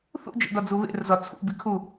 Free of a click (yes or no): yes